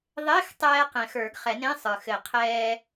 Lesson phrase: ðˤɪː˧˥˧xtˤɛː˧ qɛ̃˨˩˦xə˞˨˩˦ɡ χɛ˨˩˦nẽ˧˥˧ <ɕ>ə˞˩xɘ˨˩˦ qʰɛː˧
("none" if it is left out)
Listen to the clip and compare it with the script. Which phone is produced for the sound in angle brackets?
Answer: sˤ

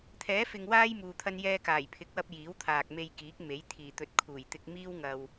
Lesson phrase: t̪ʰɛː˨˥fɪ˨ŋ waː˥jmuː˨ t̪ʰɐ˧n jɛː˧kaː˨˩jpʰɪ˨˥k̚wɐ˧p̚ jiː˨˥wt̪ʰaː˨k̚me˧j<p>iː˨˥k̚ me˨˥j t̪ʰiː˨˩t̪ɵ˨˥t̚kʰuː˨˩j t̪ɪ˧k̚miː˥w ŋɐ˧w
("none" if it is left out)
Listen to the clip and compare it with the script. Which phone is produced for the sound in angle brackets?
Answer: k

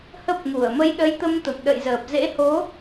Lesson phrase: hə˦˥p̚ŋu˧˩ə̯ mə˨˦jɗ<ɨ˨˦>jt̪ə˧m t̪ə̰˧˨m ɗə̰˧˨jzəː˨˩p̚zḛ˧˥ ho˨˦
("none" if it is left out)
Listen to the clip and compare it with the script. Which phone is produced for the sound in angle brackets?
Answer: ə˨˦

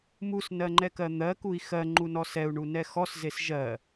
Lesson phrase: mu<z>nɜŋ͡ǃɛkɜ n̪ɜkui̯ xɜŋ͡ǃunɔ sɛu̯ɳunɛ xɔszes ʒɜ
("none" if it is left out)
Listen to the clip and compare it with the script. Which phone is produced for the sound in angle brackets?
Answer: s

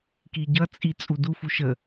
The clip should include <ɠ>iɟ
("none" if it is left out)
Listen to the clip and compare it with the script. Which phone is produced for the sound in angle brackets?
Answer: k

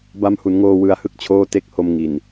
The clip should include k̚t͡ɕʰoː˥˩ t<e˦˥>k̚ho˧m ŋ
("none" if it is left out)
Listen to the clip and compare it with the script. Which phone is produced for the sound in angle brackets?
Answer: e˦˥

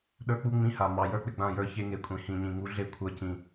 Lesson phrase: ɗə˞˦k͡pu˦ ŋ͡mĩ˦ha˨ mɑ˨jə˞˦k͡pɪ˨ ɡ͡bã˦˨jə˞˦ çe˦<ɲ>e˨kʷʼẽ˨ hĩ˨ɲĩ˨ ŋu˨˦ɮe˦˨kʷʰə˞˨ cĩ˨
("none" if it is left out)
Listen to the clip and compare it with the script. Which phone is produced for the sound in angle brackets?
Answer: ŋ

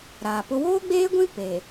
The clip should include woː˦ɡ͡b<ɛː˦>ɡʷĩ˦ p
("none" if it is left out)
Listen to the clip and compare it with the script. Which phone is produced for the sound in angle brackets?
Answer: eː˦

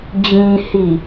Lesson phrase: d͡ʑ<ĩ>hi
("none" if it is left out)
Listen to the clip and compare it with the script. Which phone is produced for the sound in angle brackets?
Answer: ĩ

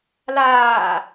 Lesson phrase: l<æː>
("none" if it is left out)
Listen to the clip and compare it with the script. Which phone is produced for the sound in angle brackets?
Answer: aː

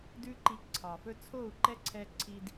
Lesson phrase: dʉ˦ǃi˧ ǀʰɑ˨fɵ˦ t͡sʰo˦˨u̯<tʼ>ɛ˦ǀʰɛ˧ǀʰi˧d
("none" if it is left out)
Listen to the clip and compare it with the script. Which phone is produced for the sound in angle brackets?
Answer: ǃ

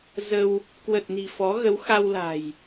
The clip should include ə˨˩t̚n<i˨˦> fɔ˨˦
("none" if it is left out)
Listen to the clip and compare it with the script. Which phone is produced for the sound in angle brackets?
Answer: i̤˨˩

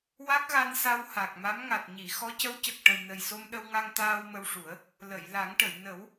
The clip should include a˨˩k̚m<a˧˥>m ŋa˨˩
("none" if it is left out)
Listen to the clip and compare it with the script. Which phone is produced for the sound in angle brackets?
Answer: a˧˥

